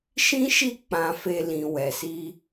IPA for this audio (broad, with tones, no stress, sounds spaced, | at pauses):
ʃ ĩ˦ ʃ i˦˨ k͡p ã˧ f e˧ l ĩ˨ w ɛ˨ s i˧